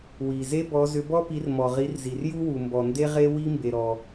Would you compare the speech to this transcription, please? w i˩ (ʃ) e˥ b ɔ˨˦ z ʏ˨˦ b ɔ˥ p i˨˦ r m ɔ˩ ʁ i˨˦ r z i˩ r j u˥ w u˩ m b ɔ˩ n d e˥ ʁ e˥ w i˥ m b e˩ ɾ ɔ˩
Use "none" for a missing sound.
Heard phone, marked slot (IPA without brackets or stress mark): z